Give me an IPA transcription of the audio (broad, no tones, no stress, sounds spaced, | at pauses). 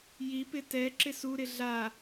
j i p ɪ t ɛ ǁ ɪ s u ɾ ɪ ɮ a